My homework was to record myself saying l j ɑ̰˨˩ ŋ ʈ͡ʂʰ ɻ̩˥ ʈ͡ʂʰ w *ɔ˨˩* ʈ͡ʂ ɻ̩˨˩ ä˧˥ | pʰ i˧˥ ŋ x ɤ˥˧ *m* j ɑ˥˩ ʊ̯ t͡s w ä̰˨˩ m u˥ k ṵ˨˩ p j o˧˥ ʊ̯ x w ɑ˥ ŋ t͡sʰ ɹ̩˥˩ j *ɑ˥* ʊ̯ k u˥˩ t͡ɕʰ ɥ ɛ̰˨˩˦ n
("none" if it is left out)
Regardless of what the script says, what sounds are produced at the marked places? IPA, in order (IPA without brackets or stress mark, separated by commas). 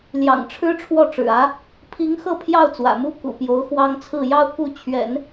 ɔ˥˩, pʰ, ɑ˥